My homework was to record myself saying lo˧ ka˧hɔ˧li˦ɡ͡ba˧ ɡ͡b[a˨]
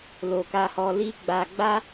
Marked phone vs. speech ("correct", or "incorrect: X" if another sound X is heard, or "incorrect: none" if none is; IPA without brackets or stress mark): incorrect: a˦